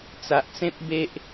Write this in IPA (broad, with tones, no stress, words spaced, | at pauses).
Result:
t͡sa˨ʔt͡sẽ˦p̚ be˦ʔ